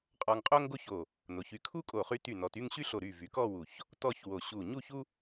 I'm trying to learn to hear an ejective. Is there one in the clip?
yes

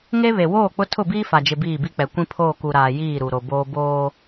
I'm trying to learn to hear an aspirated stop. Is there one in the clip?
yes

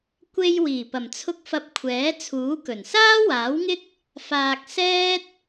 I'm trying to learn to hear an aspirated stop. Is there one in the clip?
yes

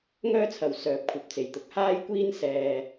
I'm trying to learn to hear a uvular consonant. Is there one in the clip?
no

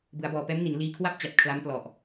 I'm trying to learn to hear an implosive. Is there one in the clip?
no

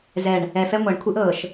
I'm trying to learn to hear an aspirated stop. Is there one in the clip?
yes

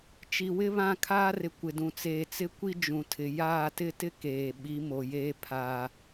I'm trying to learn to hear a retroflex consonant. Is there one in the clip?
no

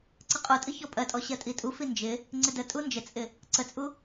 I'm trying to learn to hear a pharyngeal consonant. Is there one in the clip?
no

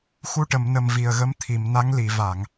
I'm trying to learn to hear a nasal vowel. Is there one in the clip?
no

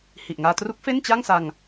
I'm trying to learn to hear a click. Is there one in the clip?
no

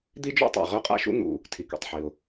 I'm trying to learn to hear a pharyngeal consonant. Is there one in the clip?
yes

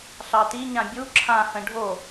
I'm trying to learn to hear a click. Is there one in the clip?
yes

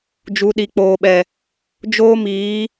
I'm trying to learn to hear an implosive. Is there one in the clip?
yes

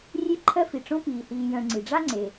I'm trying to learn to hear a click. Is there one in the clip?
yes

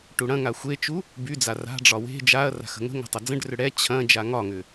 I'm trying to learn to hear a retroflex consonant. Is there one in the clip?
yes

